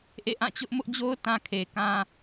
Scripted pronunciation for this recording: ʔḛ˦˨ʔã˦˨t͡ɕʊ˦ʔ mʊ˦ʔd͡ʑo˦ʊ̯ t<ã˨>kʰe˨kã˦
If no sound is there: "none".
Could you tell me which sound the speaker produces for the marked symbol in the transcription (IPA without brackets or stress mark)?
ã˦